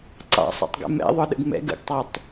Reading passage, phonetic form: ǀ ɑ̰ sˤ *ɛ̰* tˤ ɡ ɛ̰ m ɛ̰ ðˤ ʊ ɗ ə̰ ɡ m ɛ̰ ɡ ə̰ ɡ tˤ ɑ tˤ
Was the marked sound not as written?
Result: no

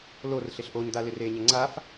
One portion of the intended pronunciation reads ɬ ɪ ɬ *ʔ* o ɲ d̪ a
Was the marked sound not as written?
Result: no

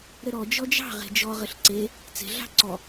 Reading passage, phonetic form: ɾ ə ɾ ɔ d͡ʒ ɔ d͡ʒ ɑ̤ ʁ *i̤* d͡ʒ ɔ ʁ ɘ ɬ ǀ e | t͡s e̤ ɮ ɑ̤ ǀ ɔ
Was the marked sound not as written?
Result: yes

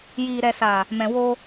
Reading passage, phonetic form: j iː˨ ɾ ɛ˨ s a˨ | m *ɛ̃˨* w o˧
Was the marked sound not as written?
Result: no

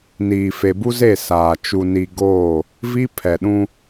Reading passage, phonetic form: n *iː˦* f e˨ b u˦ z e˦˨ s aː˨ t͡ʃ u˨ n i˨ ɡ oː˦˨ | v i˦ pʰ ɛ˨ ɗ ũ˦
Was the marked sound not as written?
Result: yes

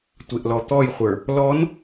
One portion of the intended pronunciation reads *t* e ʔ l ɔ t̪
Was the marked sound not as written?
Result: yes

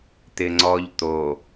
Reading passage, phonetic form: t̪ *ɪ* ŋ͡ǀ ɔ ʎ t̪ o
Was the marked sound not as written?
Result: no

